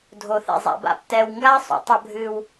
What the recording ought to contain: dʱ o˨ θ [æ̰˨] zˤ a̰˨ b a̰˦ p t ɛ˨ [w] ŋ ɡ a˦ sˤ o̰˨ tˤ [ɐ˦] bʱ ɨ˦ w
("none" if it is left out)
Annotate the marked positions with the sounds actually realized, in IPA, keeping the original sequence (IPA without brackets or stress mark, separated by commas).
ɛ̰˨, w, ɐ˦